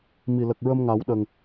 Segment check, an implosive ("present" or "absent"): present